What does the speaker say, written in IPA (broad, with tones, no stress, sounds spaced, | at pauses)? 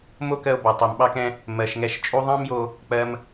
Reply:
m o˥ k ɜ˧ o̯ b ɒ˩ tˤ ɜ˩ m ɓ ɑ˧ k ɛ̃˧ | m ɜ˩ ʃ ŋ ɛ˧ ʃ t͡ʃʼ u˧ ðˤ ɑ̃˥ m j o˧ | k͡p ɜ˧ m